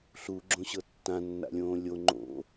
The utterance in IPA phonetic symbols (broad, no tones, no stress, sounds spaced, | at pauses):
ɬ u ɡ͡ǁ õ ɕ ɤ tː ã nː a̰ lʲ õː lʲ o ŋ͡ǃ o̰